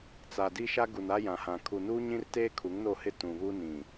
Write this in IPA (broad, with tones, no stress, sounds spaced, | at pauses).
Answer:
t͡s a˨ d i˦ ʃ a˦ ɡ u˨ n a˦ j ã˨ h ã˨ kʰ u˨ n uː˦ ɲ ĩ˦ r t eː˦ kʰ u˨˦ ŋ n o˦˨ h ɪ˦ t ũ˨ β u˦ n ĩ˨